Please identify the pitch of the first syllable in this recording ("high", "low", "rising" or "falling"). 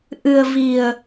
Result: low